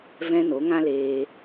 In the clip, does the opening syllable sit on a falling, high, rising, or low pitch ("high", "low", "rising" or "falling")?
high